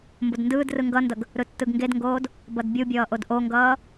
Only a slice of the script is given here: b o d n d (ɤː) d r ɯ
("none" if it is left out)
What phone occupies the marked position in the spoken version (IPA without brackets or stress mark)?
ɯː